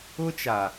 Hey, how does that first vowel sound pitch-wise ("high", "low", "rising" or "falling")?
high